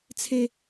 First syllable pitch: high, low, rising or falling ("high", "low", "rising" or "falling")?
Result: high